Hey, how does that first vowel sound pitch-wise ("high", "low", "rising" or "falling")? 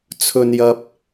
high